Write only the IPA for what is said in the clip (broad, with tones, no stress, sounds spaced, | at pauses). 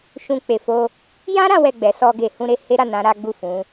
ʃ ũ˧ k͡p e˨ f o˧ | j ã˦ ɾ ã˦ w ɛ˦˨ ɡ͡b ɛ˨˦ s ɔ˧ ɡ e˨ h ũ˧ ɾ e˧ h e˦ ɾ a˦˨ n ã˨˦ ɾ a˦ ɡ͡b u˦˨ f ũ˨˦